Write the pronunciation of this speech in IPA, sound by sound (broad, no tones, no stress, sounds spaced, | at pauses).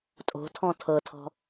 tʼ o̤ tʰ ɔ̃ tʰ ɤ tʰ ɔ̤